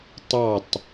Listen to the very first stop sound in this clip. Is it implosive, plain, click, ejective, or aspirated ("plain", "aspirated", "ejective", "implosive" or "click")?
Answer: plain